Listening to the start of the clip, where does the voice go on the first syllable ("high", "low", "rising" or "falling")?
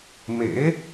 rising